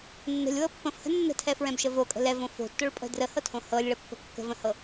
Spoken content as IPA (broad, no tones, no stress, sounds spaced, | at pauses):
nː ə̤ lʲ w ɤ pː ə̃ f h ə̤ nː ə̤ tʰ ɛ f ɹ ɛ̃ b ʃ ə v o kʼ ə̤ l ɛ v õ f o̤ tː o ɭ pʼ ə̤ d r ə h ɤ tʰ õ h ɤ lʲ ɭ ə pː ə̤ kː ə̤ v ə̃ h ɤ